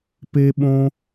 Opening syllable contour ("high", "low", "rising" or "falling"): high